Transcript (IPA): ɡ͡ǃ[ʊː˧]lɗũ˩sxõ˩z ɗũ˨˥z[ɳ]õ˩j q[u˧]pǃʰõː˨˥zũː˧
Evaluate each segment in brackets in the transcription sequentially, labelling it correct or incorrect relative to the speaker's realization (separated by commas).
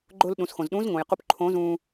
correct, incorrect, correct